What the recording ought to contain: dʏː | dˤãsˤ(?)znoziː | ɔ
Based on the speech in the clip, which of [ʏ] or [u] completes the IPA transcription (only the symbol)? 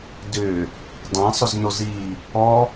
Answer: ʏ